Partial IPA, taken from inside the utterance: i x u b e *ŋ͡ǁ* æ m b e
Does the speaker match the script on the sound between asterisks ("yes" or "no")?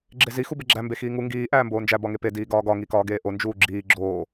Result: no